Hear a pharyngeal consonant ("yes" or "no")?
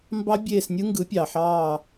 yes